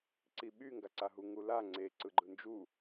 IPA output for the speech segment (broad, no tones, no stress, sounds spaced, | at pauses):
ǀ i ɓ y ŋ ɡ a ǀ a ɦ u ŋ u l a ŋ͡ǀ e ǀ ɯ ɡ͡ǃ ɯ n d͡ʒ u